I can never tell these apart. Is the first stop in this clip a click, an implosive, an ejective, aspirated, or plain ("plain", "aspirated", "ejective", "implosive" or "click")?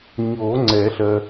click